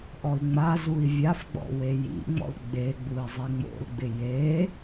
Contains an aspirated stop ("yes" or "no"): no